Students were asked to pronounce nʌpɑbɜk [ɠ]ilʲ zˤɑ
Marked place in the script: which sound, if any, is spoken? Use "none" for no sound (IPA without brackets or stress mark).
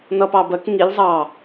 ŋ